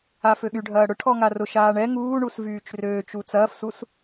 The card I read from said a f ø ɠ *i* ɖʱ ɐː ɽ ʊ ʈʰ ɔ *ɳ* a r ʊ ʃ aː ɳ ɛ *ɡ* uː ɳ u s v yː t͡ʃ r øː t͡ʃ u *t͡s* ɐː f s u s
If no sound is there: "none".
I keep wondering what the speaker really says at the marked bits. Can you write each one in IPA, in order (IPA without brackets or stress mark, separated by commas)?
y, ŋ, ŋ, t͡s